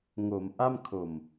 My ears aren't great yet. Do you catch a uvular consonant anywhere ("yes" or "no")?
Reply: no